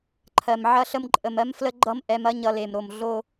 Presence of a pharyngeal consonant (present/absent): present